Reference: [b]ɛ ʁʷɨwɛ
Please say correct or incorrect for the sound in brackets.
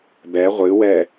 correct